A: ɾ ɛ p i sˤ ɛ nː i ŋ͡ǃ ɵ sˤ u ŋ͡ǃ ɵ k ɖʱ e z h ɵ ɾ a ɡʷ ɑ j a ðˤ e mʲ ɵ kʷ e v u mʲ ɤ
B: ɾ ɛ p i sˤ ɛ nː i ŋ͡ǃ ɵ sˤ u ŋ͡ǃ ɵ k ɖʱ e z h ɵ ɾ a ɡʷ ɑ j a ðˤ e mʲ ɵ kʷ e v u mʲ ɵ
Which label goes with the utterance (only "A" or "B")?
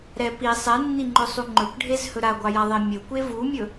B